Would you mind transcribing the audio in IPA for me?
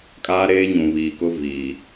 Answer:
kʼ aː˦ ɾ eː˦ ɲ ũ˨ β iː˨ k ʊ˦ v iː˨

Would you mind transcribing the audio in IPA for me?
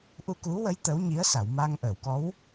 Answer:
ʔ u˧ k u˧˥ w ə˧˥ j t̪ ə˧˥ w ɲ i˧˥ ə̯ s a˨˩˨ w m a˧ ŋ ʔ əː˨˩˨ w k ɔ˧˥ w

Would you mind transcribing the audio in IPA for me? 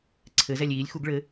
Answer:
ǀʰ ɘ z ɛ lʲ iː lʲ x u ɡ ɭ ɘ

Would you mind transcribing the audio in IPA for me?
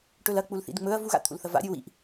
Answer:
ʈ ɵ l ɐ k͡p u l θ ḭ d ŋ͡m ɵ ɐ̯ v u ɣ a̰ t̪ʰ ṵ l θ ɐ v a̰ ɾʲ ɨ w ḭ ʔ

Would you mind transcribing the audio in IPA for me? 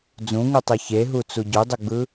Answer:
d͡z ũ ŋ u tˤ ɯ ç e ɦ u t͡s u ɟ u dˤ ɯ ɡ͡b ɯ

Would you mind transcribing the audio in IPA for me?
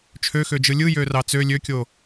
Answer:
t͡ʃʰ ø x ø d͡ʒ ɯ lʲ ɯ j ø r ɑ t͡s ø lʲ ø kʲ o

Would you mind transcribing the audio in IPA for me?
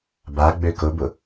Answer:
b a ɡ͡b ø k ʊ b ʊ

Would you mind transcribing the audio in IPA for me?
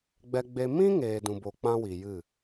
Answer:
ɡ͡b ɛ˧ ɡ͡b e˧ m ĩ˦ ŋ eː˧ d ũ˧ b o˧ k͡p ã˦ w i˨ j ɨ˦˨

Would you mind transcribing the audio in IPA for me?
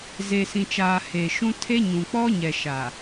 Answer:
z e˨ s ĩ˨ t͡ʃ aː˨ h e˨ ʃ ũ˦ tʰ e˦ ɲ ũ˨ k͡p ɔ˦ ɲ ɛ˨ ʃ a˨

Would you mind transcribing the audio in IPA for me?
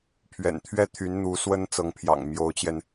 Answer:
pʰ ɥ ɛ̰˨˩ n t̪ʰ ɥ ɛ˥˩ t̪ʰ y˧˥ n n̪ u˧˥ s w ə˥ n t͡s ɤ˧˥ ŋ pʰ j ɑ̰˨˩ ŋ m j o˧˥ ʊ̯ t͡ɕ j ɛ˧ n

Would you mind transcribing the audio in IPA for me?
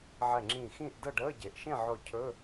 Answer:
ʕ ɛ˧˩ ŋ͡ǁ ĩː˧˩ x ĩː˥˨ ʔ d ɤ˥˨ ɖ əː˧˥˧ ɟ e˩ ʔ ʃ ẽ˥˨ ʕ ʊː˧˩ cʰ ɵ˧˥˧

